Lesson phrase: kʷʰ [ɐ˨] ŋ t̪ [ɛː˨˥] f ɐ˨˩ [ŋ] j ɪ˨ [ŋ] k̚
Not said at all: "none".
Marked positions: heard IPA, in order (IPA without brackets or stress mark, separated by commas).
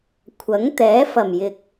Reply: ɐ˨˥, ɛː˨˥, m, none